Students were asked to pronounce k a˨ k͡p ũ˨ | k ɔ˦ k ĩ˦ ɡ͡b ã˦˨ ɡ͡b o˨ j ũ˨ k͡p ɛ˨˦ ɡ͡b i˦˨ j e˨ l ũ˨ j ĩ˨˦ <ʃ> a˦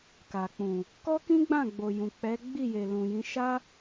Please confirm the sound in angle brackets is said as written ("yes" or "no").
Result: yes